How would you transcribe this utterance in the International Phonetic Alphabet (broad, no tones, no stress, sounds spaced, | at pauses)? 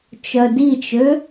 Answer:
t͡ʃ œ d i t͡ʃ ø